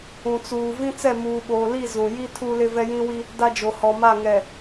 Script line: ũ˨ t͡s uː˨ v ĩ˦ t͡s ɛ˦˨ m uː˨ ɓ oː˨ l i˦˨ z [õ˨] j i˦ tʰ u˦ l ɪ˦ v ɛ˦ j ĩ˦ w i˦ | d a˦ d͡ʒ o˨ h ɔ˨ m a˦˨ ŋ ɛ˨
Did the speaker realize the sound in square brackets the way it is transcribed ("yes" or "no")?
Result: no